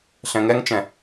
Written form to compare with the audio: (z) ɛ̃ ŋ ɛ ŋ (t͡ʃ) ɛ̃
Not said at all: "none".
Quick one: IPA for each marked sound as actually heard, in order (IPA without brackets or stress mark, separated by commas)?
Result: ɬ, t͡ʃ